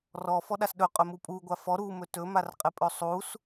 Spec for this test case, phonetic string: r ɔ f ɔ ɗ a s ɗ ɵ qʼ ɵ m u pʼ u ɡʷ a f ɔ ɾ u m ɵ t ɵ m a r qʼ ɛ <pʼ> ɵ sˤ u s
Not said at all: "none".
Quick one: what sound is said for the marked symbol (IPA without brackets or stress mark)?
pʼ